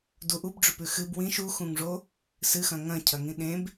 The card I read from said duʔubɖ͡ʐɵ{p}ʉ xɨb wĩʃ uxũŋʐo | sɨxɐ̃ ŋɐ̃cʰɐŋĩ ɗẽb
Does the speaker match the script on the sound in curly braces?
yes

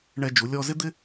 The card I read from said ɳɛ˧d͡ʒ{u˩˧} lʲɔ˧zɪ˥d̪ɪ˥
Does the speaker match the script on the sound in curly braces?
yes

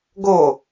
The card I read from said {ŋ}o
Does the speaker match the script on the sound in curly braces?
no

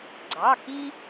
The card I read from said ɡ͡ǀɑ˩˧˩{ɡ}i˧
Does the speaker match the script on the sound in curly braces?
no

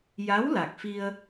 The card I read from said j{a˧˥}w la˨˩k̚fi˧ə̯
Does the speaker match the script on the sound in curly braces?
yes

